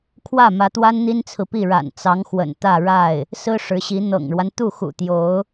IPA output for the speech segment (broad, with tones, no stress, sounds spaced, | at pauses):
kʰ w ä˥˩ m ä˧˥ t̪ w a˥ n n̪ i˥ n t͡sʰ ɹ̩˨ p i˥˩ ɻ a̰˨˩ n t͡s ɑ˧˥ ŋ x w ə̰˨˩ n t̪ ä˥˧ ɻ a˥˩ ɪ̯ | s ɹ̩˥ ʂ ɻ̩˧˥ ɕ i˧˥ n̪ ɤ̰˨˩ ŋ ɻ w a˦ n t̪ u˥˩ x ṵ˨˩ t̪ j o˧˥ ʊ̯